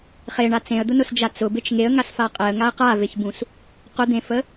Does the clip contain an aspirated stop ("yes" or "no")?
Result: no